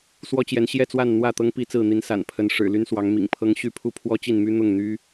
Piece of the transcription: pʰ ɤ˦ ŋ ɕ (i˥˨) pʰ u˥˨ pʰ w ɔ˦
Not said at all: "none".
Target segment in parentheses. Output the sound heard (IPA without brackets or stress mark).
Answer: y˥˨